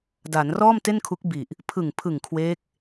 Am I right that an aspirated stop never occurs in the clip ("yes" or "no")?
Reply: no